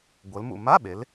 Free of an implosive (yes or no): no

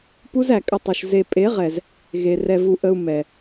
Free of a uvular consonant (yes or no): no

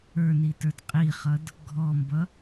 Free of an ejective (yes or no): no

